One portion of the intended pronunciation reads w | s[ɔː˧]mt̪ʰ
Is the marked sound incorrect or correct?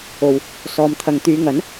incorrect